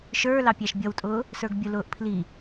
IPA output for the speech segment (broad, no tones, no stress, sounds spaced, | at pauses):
ʃ ə˞ l ɑ pʲ æ ʃ bʲ ʌ w tʼ ʊː | s ə˞ ɡ bʲ ʊ l ʊː ʔ pʰ l i